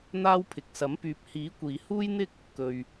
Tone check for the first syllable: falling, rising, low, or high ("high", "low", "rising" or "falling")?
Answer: high